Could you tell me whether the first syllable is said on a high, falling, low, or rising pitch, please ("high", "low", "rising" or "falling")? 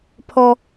high